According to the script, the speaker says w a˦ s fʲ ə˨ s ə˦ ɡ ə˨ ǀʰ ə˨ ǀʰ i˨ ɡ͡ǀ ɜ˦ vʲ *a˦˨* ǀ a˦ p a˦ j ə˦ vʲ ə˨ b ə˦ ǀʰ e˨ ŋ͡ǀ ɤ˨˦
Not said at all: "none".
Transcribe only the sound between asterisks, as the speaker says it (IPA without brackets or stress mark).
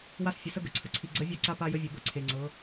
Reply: a˦˨